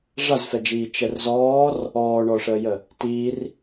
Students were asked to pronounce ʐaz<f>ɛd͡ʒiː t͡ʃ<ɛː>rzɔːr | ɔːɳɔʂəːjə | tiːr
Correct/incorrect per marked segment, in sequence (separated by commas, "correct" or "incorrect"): correct, incorrect